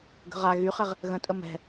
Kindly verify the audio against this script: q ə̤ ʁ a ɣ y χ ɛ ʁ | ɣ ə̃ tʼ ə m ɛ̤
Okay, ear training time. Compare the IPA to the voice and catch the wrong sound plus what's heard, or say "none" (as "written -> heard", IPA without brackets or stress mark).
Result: q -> ɡ